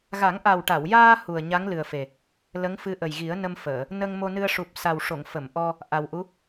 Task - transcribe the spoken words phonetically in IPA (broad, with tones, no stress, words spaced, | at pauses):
ɣa˨˩˦ŋʔa˨˩wʈa˨˩˨wjaː˧ hu˨˩ə̯ ɲa˧˥ŋlɨ˨˩ə̯fe˨˩ | lə˧˥ŋfɨ˧˥ʔə˨˩j ɣi˨˩˦ə̯nə˧mfəː˨˩˨ | nə˧ŋ mo˧nɨ˧ə̯ʂu˨˩p̚ sa˨˩w ʂo˨˩˨ŋ fə˨˩˨mʔɔ˧ | ʔa˨˩wʔu˧˥